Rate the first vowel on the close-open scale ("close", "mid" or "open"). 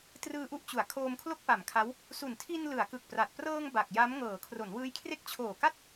close